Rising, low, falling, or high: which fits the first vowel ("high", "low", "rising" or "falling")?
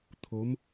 rising